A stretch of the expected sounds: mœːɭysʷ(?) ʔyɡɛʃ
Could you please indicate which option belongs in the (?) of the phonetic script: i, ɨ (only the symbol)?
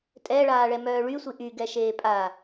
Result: i